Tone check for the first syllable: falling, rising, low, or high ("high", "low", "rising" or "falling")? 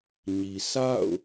low